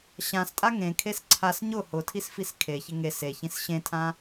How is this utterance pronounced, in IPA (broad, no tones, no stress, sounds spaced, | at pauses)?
ɕ ã s tʼ a ŋ ẽ kʰ e s ǀʰ a s ɲ ʊ h ʊ tʰ i s f i s kʰ e ç ɪ ŋ e s e ç ĩ s ɕ ẽ tʰ ã